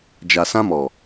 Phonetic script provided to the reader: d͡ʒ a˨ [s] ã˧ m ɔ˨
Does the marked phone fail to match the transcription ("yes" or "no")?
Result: no